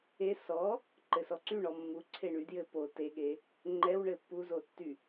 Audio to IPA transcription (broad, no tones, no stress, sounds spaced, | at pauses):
e s ɔ | ǃ ɘ s ɔ ǀ y ɳ ɔ mː u ǀʰ e ɳ y d j ɘ p o t e ɠ e | ŋ͡ǃ ɛ w ɳ ɘ pː u z o tː y